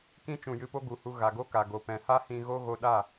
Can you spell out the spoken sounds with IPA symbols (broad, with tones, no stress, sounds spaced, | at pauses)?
k ĩ˧ t͡ʃ ũ˨ j ɨ˧ p o˦ ɡ u˨˦ h u˧ ɣ a˨ ɡ o˦ k a˨ ɡ o˨ p ɛ̃˨ h a˦ h ĩ˧ ɣ o˦ ɣ o˧ ɗ a˦˨